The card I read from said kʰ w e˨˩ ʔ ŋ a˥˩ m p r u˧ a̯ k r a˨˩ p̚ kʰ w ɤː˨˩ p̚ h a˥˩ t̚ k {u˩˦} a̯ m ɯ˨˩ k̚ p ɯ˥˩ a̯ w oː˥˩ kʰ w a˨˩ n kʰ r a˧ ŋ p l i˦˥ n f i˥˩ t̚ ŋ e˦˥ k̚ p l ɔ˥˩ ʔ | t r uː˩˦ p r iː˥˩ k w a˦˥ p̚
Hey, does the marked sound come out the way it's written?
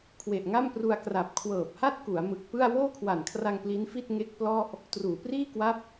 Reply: yes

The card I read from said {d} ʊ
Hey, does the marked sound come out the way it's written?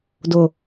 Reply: yes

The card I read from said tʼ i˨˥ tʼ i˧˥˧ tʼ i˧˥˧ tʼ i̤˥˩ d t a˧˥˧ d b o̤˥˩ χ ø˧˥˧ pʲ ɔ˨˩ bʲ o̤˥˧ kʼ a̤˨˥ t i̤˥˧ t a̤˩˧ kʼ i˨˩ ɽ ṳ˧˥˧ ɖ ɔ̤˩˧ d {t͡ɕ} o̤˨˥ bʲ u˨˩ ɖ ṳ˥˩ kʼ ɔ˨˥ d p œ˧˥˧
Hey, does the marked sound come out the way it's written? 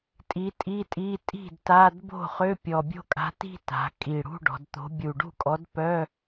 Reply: no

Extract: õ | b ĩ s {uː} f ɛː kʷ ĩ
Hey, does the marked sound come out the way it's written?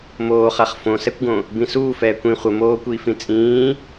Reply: yes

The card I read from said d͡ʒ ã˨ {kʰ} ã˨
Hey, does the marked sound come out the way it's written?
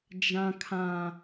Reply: yes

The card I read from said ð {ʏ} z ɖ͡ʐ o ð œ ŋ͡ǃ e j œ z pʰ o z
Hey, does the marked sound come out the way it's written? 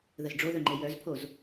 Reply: no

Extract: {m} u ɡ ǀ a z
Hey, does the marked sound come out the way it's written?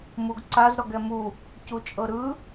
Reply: yes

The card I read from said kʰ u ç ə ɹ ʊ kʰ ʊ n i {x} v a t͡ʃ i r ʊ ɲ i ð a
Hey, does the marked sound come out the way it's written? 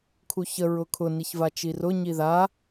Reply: no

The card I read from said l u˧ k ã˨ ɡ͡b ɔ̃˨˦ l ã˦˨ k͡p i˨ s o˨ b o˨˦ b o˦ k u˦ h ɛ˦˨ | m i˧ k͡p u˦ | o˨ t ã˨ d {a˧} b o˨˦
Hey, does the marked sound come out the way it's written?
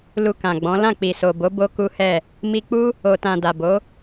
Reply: no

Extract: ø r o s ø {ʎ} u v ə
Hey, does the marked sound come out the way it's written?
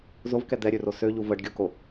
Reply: yes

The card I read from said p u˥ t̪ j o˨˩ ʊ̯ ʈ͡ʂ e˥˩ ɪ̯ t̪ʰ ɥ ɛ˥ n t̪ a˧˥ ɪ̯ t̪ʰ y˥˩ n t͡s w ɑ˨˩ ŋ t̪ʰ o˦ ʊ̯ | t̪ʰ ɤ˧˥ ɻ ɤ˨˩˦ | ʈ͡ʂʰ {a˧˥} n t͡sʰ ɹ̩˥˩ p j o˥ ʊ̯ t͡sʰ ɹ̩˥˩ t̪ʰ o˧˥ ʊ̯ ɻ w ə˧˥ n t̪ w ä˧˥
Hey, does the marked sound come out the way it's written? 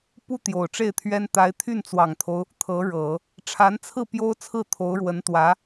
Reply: yes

